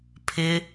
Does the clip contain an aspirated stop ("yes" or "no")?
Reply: yes